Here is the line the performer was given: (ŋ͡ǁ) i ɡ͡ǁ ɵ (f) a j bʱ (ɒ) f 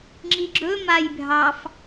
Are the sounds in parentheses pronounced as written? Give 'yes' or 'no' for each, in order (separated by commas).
yes, no, no